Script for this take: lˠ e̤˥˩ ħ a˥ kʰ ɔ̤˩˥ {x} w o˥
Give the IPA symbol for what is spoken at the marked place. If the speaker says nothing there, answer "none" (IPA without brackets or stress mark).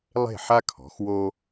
x